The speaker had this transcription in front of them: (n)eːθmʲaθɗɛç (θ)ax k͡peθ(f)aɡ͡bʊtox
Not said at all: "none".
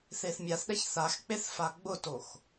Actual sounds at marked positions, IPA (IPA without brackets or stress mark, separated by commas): θ, θ, f